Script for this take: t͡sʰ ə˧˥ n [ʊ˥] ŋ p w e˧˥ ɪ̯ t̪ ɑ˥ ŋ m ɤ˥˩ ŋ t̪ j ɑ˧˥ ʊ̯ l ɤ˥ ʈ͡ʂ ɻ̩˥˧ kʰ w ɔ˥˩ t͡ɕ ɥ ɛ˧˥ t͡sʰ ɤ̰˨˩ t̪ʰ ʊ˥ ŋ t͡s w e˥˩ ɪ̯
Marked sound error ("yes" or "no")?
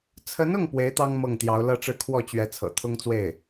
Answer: yes